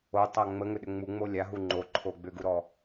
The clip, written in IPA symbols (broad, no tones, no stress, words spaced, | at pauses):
otˤa ŋ͡məŋʏɗʏ ŋ͡muŋ͡mo lʲaɦu ŋ͡ǃoǃʰo ɡ͡bʏɡuɾɔ